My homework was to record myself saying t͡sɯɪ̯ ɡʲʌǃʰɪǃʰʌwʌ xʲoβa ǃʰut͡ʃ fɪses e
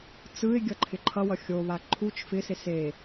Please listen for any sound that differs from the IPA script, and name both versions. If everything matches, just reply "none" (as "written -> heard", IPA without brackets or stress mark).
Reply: none